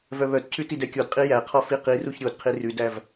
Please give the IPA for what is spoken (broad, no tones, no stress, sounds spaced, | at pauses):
v œ β œ t cʰ ʉ t i d ɛ kʲ ɔ d qʼ i j æ qʰ ɔ f i q i r u ç ɾʲ o d qʰ i r ʉ d æ v